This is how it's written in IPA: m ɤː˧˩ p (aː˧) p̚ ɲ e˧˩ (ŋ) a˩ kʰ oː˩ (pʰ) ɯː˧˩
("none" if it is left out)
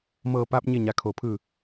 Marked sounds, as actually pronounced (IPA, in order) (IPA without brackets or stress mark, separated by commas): aː˧, ɲ, pʰ